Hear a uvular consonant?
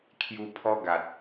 no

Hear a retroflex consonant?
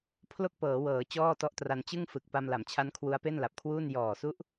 no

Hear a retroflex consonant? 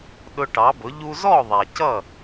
yes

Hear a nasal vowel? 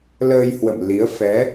no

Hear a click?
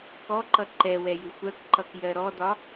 yes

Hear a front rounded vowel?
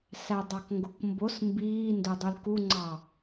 yes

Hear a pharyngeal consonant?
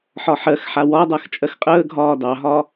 yes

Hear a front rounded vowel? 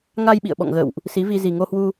no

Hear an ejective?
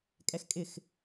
yes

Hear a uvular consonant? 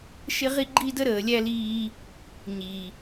yes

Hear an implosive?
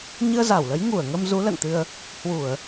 no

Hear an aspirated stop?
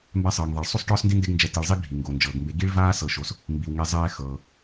no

